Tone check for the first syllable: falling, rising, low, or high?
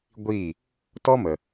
falling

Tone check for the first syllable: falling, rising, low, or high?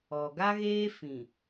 low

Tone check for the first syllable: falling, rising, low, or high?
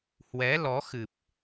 rising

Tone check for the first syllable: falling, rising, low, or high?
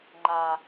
high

